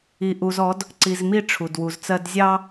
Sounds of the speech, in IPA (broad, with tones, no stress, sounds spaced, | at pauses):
i˨ ʔ u˨ z ɔ˨˦ d | ǀ i˨ z m i˦˨ ʈ͡ʂʰ u˨ d w u˨ z t͡s ɜ˦ d zʲ ɑ˦